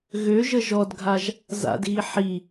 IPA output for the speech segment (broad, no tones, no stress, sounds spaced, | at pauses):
ɣ ø ʒ ə ʒ ɔ d ɡʱ a ʒ | z a̰ d ɣ i ħ i